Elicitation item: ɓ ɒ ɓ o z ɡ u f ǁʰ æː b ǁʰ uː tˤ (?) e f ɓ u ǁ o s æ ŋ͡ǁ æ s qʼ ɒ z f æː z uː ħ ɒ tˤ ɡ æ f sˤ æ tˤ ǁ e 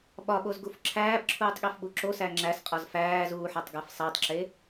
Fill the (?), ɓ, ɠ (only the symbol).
ɠ